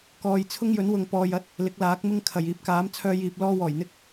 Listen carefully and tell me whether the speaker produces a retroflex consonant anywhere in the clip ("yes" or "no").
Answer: no